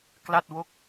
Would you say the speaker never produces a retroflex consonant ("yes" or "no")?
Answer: yes